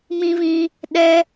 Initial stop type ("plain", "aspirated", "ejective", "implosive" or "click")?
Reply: implosive